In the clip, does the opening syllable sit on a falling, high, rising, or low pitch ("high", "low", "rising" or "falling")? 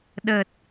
low